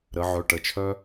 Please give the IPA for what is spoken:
ɾə˩˧ʕœ˩˧˩ʈə˥˩t͡ʃʰœ˥

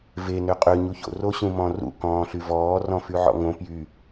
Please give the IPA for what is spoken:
ve nøqʼø ɲuço̰ roɕũmɔ̃rṵ kɔ̃ːɬyvɔː rɔ̃fyʕɔ̰ŋõ pjy

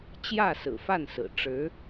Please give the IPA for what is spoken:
t͡ɕjä˥˩sɹ̩˨˩ fa˥˩nsɹ̩˨˩ ʈ͡ʂɻ̩˧˥

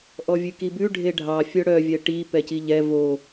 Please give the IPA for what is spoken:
ʔɔvʲʉkibʉ ɖʱeɖʱɑ fʲœɽœvʲɛ ʈi pɛciʎɛ vo

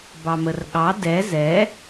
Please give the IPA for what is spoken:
bɑmərɠɑ dɛ zɛ

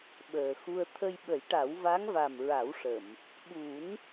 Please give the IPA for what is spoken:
ɓəː˨˩xu˧ə̯ t̪ʰə˧jɓə˨˩˦jʈa˨˩˦w va˧˥ŋva˨˩mɹa˨˩˦wʂə˨˩˨m | ɓu˨˩˦n

